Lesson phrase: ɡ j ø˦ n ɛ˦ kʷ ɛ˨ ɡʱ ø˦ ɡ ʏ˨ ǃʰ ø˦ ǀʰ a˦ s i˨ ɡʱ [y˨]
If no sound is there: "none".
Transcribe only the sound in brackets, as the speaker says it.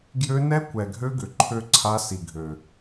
ø˨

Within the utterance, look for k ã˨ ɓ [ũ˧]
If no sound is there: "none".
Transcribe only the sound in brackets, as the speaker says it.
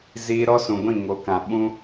ũ˦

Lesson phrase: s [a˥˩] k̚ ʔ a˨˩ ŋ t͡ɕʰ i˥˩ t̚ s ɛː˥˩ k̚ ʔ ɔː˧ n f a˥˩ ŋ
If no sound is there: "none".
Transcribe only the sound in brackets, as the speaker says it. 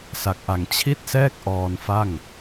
a˨˩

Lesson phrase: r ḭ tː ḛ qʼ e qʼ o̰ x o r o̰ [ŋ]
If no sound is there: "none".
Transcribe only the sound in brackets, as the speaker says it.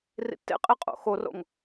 ŋ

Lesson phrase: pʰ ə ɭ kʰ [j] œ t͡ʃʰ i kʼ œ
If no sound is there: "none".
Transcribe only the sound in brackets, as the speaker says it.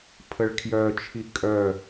j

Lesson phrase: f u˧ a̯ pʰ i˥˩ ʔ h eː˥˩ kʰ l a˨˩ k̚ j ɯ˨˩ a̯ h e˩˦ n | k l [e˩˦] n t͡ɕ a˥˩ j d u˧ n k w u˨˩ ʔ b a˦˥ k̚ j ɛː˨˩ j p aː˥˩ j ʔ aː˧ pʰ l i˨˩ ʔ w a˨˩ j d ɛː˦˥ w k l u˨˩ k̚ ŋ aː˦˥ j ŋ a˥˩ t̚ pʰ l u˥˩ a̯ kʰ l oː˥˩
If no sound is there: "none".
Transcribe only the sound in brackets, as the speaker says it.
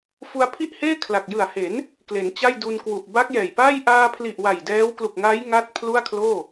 e˩˦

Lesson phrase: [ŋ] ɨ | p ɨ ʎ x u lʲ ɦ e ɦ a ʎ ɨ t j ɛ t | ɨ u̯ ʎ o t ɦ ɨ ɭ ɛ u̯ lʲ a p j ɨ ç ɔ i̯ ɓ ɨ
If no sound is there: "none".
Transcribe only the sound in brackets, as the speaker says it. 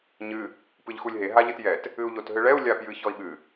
ɲ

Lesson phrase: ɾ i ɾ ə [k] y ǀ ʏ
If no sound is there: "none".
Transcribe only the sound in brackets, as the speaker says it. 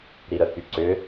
k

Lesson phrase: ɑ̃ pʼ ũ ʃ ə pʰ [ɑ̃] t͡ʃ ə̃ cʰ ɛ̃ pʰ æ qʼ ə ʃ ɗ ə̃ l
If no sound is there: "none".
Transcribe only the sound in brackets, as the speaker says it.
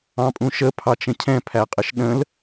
ɑ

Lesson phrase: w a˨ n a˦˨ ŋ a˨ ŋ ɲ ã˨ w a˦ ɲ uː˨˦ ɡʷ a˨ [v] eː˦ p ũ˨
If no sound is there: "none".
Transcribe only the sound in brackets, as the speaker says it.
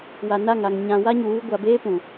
b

